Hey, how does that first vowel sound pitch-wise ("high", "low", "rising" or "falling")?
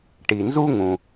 low